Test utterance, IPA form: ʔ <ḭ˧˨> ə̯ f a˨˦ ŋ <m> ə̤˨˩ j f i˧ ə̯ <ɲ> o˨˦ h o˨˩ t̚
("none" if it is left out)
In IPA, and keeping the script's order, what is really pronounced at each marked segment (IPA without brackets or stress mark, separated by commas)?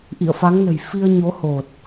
ḭ˧˨, n, ɲ